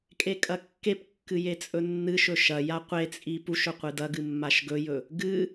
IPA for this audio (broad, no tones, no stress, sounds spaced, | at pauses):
kʼ e kʼ ɐ kː e p kː ɨ j e t͡sʼ ɵ nː ɨ ʃ ɵ ʃ ɐ j a qʷ e t͡sʼ i p u ʃ ɵ qʷ ɨ d ɐ ɡ ɨ mː a ʃ ɡ ɵ j ɵ | ɡ ɨ